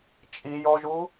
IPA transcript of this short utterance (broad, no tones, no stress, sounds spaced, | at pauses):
t͡ʃʼ i j ɔ ʒ u